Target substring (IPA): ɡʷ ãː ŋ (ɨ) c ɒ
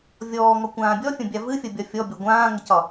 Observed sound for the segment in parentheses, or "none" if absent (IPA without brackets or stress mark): ə